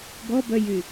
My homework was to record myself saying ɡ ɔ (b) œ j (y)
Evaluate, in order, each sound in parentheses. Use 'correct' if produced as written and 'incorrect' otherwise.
correct, correct

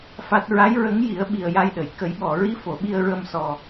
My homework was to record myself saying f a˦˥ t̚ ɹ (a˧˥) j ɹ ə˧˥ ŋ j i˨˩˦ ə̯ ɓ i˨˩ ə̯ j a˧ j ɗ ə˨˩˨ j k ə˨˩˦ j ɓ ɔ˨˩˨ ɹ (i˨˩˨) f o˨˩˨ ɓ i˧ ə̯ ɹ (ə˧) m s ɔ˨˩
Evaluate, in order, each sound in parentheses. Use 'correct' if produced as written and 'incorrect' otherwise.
correct, incorrect: i˧˥, correct

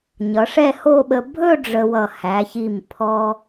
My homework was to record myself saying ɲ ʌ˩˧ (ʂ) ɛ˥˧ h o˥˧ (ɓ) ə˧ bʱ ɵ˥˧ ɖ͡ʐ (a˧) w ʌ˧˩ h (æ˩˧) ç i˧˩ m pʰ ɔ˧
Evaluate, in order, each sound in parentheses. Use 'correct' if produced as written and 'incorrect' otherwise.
correct, correct, incorrect: ə˧, correct

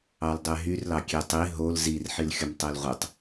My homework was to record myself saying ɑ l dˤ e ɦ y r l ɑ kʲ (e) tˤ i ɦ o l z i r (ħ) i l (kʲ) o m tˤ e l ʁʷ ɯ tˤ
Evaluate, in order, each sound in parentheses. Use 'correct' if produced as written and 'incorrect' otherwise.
correct, correct, incorrect: xʲ

